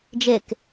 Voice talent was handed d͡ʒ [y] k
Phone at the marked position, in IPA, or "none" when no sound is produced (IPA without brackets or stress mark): e